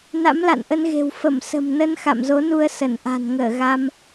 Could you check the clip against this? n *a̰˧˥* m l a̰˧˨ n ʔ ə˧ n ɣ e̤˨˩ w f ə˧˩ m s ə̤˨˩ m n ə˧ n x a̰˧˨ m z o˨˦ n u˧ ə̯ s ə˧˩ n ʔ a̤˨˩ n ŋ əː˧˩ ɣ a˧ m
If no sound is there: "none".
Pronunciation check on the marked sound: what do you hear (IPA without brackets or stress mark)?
a̰˧˥